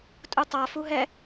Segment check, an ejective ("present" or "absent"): present